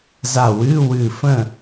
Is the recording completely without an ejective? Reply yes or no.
yes